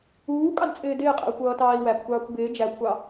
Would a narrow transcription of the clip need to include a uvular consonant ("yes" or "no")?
yes